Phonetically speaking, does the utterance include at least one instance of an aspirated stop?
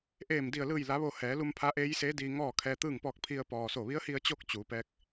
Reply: yes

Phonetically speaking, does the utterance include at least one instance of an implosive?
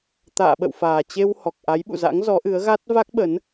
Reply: yes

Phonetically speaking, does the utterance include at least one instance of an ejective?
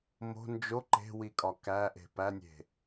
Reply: yes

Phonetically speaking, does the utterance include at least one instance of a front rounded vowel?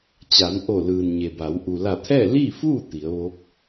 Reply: no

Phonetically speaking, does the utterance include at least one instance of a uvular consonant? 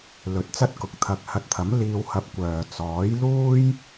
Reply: no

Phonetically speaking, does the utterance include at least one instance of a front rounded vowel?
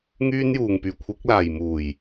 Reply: yes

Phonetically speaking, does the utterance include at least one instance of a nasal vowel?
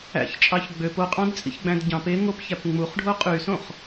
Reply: yes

